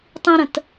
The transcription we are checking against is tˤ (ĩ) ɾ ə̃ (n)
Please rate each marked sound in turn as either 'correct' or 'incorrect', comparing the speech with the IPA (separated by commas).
correct, incorrect